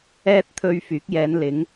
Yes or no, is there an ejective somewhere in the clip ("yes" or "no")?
no